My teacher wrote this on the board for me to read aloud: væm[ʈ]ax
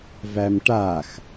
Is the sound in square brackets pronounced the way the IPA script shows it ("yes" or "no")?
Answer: yes